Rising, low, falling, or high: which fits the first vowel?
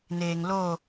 low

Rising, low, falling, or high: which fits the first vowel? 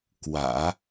low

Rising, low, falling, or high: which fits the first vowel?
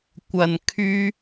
low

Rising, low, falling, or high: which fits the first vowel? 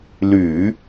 low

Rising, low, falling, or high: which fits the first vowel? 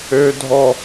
high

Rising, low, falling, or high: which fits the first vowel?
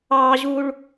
high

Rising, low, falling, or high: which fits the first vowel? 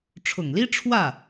low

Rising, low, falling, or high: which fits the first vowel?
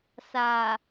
low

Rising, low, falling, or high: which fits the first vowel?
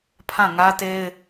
falling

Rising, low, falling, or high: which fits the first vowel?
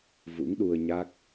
rising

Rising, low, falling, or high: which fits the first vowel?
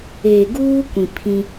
low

